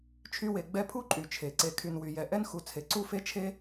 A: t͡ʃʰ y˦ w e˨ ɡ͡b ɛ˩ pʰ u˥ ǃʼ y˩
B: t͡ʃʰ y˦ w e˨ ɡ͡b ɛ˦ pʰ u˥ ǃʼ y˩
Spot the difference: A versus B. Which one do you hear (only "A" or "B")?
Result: B